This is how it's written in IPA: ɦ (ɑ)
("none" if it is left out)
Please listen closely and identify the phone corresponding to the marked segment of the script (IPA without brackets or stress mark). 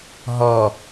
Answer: ɔ